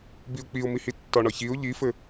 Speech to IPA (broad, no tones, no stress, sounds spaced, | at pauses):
b i ʊ̯ k͡p i ʊ̯ m i h i tː ɒ ɳ ɒ ç i ʊ̯ ʎ i f ɘ